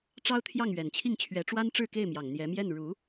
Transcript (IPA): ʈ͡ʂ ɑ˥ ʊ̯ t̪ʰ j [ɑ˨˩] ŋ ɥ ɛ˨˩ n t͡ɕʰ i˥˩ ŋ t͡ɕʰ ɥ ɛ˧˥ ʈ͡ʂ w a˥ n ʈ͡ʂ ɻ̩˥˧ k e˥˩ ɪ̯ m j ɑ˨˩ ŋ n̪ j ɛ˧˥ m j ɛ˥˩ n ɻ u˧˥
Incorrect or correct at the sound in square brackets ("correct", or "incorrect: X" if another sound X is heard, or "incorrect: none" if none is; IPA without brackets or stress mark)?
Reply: incorrect: ɑ˥˩